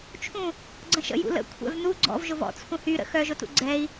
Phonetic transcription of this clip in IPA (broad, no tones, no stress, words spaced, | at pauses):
t͡ʃʰũ | ɡ͡ǀə̃ʃə̰jṵ lə̰ kʷʰɛ̰vnu ɡ͡ǀɔ̰v ʒʊvɔ̰t͡sʰũ hy ɾə̰ xœʒʊtṵ ɡ͡ǀɛi̯